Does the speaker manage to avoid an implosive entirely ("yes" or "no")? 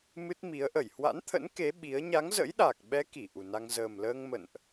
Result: no